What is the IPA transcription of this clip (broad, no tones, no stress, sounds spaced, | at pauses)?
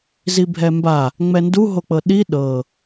z i bʱ ɛ m b a | ŋ͡m ɛ n d u ɦ o k͡p ɤ ɗ i ɗ ɤ